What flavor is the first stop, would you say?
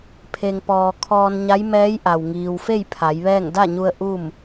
aspirated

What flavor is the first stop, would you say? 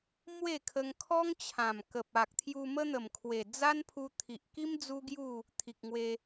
aspirated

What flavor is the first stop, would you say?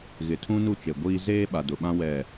aspirated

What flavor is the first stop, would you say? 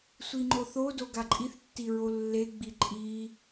click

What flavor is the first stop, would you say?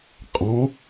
ejective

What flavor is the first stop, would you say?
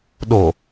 implosive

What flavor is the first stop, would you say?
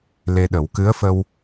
implosive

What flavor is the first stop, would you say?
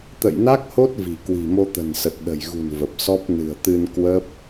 plain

